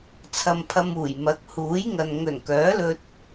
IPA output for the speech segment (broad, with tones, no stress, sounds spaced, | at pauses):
t͡sʰ ɐ˧ m pʰ ɐ˧ m uː˨˩ j m ɐ˨˥ k̚ h uː˨˥ j ŋ ɐ˨ n ŋ ɵ˨˩ n k œː˨˥ l ɵ˧ t̚